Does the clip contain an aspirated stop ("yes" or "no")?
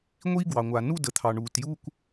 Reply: yes